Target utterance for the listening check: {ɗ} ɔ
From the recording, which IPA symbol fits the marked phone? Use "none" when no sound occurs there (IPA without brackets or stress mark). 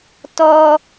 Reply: t